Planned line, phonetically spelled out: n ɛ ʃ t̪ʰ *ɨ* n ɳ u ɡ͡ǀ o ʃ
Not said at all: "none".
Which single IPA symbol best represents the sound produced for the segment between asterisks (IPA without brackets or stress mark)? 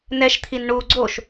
i